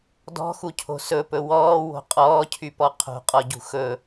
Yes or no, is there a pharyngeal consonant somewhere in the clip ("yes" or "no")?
no